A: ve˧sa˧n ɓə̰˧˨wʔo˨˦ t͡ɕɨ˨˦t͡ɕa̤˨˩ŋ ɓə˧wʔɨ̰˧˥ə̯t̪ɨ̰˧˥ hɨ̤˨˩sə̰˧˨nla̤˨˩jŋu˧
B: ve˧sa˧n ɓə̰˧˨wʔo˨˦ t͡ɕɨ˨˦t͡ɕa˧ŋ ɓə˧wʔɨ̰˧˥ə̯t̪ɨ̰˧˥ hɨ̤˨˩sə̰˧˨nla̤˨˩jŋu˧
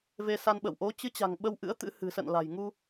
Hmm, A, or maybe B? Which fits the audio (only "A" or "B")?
A